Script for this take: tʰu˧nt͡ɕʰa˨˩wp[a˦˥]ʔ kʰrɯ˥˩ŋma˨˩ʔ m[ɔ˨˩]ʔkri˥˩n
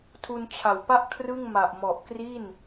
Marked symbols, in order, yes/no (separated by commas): no, yes